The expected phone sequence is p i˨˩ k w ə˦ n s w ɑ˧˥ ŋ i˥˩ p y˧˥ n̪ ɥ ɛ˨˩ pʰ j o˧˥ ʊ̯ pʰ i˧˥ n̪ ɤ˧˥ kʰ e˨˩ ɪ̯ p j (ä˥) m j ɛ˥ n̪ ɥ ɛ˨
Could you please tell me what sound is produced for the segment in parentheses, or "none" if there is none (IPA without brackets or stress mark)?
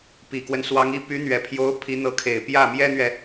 ä˥˩